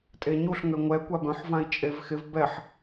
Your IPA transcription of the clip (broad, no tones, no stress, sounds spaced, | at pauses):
tʼ e ɲ u ɬ ŋ ø ŋʷ ɛ kʷ a b œ̃ ħ v ã i̯ t͡ʃʼ e v x ɪ v b ɛ ħ